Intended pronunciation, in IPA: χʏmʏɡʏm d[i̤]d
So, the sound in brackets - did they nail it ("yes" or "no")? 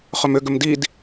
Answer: no